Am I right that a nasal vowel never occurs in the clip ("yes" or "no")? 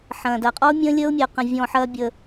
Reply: no